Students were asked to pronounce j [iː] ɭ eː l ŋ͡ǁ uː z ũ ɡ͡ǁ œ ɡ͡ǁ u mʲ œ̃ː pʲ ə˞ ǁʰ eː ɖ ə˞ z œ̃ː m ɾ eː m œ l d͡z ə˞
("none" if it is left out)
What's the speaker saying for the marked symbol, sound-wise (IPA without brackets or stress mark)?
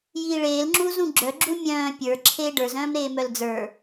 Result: iː